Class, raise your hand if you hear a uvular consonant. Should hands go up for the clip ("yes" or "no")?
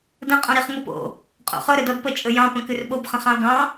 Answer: yes